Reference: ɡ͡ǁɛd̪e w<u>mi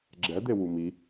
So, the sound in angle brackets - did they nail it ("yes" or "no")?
yes